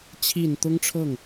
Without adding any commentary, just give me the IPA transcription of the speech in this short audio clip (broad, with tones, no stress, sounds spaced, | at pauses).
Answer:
t͡ɕʰ i˨˩ n t̪ ʊ˥ ŋ ʈ͡ʂʰ ɤ˥˩ ŋ